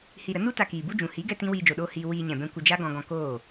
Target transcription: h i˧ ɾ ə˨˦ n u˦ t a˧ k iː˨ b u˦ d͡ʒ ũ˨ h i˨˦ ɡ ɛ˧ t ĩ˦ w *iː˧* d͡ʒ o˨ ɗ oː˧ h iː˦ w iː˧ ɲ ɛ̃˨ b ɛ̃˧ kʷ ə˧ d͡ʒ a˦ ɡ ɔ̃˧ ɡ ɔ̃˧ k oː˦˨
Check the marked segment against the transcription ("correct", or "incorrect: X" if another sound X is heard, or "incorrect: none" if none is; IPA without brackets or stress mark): correct